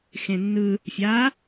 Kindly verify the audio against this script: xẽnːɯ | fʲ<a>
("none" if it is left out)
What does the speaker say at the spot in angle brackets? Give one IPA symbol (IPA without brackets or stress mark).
a